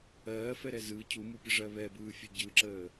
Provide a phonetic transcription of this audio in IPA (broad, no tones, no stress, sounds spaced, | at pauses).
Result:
ɜː f ɛ ɾ ɛ z ɯ cʰ u m u pʲ ə ʐ ɜ β ɛ b ɯː fʲ ɛ ɟ ɯ ǁ əː